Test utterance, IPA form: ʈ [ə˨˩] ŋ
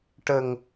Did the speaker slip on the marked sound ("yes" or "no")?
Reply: no